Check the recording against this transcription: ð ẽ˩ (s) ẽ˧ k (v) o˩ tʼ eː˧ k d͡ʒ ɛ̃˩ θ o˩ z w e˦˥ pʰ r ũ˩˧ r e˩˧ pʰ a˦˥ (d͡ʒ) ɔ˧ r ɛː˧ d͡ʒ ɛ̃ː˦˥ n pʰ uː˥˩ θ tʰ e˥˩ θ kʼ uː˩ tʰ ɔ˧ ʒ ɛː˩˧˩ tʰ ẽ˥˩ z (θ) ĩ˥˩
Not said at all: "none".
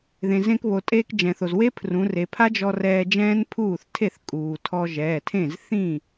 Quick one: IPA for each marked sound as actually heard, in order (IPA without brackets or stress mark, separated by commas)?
z, β, d͡ʒ, θ